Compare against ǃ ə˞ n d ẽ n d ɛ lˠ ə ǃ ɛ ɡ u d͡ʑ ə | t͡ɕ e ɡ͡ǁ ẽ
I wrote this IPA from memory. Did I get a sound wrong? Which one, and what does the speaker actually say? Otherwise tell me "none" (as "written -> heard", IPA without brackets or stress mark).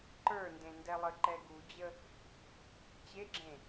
none